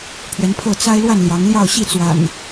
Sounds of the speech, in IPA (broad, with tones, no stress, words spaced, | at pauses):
pʰɥɛ˨˦npʰɤ˥˨ t͡sa˦ɪ̯lwa˥˨n ljɑ˨˦ŋljɑ˥˨ʊ̯ɕi˥˨ t͡swa̰˨˩n